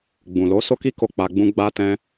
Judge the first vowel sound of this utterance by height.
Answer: high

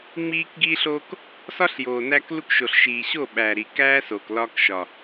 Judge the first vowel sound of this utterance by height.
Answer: high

